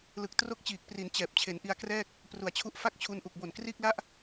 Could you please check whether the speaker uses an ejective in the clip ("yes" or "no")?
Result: no